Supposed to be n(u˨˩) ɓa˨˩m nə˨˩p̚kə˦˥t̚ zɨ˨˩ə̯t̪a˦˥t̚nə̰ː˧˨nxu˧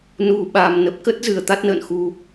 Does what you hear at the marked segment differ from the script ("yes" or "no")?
no